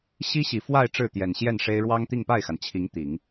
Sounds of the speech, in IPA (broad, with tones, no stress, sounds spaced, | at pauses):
ɕ i˥ ɕ i˨˩ f w a˥˧ ɪ̯ ʈ͡ʂ ɻ̩˥˩ t̪ j ɛ˨˩ n ɕ j ɛ˥˩ n ʂ e˥ ɪ̯ ɻ w ɑ˥ ŋ t̪ i˥˧ ŋ p a˥˩ ɪ̯ x a˩ n t͡ɕʰ i˧˥ ŋ t̪ i˨˩˦ ŋ